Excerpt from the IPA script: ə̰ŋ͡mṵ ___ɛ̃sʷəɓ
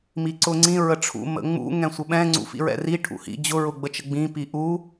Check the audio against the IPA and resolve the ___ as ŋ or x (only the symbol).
ŋ